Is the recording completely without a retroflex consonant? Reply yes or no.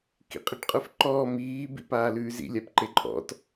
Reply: no